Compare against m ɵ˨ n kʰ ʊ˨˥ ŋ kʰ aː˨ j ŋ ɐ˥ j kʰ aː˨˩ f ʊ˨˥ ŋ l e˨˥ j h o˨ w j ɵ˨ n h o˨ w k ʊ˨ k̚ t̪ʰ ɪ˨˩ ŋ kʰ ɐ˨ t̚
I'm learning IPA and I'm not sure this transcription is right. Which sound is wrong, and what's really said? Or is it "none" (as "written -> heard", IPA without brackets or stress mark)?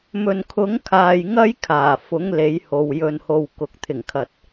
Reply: none